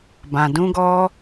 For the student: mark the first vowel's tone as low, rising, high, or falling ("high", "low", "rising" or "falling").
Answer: low